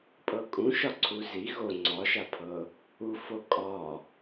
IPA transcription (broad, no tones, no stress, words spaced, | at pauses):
pʼɤkʼũ ʃɒǀʰuzi ɣo ŋ͡ǀɒʃapʰɤ | ufo kʼɒ